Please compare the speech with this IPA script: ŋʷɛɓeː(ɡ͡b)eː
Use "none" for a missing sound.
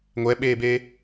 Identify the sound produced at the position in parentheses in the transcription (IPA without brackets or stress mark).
b